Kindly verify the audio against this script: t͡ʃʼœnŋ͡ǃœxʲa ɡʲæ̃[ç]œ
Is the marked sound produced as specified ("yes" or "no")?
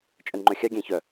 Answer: yes